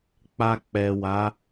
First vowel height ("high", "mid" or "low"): low